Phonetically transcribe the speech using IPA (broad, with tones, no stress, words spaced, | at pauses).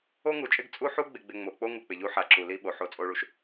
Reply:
o˦ŋu˨t͡ʃʼɪ˦ɡ t͡sʼu˦ħu˦ɡ͡bɪ˨ɡ͡bɪ˨ ŋ͡mo˨k͡po˦ ŋu˨k͡pɪ˨ʎu˦ħa˨ ǁu˨li˦ɓo˨ ħo˨t͡sʼo˨ɭu˨ʃ